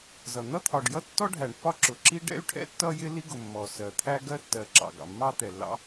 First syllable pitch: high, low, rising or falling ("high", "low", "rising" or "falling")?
low